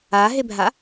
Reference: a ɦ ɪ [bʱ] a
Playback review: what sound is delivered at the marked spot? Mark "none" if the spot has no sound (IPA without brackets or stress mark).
bʱ